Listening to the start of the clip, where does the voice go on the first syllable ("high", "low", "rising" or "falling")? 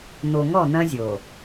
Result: low